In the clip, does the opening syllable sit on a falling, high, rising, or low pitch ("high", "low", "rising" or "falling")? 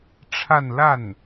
falling